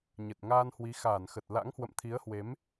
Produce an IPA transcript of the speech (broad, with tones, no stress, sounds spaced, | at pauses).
ɲ ə˨˩ t̚ ŋ aː˧ n h w i˨˦ x aː˧˩ n x ə˨˩ t̚ l a̰˧˥ ŋ h w ə̰˧˨ m t̪ʰ i˨˦ ə̯ h w e˨˦ m